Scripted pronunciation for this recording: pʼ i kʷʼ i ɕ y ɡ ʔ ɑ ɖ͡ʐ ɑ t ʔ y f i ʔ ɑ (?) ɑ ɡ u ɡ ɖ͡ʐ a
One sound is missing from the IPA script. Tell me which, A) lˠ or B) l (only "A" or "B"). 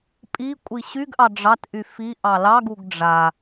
B